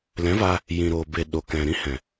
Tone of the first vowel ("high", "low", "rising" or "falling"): rising